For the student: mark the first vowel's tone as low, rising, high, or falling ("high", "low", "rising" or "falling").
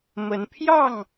rising